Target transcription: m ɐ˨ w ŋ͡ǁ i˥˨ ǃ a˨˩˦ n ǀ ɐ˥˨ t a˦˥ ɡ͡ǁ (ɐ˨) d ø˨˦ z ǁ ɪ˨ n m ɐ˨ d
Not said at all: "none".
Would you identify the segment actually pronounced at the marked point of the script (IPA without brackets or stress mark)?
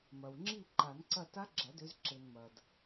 ɐ˨˩˦